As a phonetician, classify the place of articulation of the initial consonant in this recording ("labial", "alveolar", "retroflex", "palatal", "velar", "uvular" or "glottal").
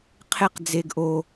uvular